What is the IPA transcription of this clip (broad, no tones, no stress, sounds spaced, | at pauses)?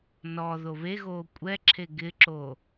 n ɔ ð o β e ɣ oː kʷʼ ɛ ǁʰ e ɡ ɪ ǁ o